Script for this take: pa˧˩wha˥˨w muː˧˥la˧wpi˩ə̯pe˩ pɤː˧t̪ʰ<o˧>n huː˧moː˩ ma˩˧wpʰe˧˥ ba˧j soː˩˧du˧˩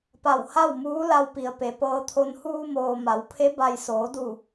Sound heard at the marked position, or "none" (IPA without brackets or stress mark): o˧